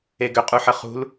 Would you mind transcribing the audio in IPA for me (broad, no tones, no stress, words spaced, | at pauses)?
eɡʏ qʼuħəχṳl